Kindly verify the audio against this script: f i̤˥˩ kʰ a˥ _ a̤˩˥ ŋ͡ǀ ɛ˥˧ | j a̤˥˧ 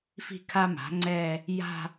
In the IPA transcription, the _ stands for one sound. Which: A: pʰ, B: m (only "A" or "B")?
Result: B